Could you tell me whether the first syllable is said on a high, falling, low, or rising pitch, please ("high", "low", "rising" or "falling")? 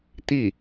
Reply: falling